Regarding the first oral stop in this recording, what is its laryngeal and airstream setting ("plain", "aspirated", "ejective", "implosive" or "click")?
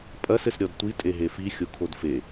ejective